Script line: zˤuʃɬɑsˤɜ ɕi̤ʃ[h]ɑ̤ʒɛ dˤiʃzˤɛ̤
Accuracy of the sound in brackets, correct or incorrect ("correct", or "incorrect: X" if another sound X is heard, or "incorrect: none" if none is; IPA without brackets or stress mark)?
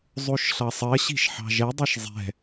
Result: incorrect: ħ